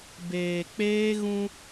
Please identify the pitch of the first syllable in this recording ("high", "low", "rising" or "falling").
low